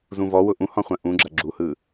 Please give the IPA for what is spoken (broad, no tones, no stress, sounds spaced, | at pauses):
z ũ v ɔ w ʊ ʔ ũ h ɔ̃ χʷ ɐ̃ ʔ ũ ɡ͡ǁ ɐ ɡ͡ǁ u h ɯ